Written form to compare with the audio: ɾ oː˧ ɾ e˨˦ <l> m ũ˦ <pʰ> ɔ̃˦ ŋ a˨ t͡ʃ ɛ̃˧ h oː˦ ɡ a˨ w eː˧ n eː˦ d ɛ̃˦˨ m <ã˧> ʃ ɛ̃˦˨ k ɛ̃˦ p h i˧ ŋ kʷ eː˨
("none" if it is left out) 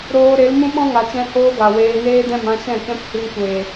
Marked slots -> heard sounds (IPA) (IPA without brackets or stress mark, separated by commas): l, ɓ, ã˧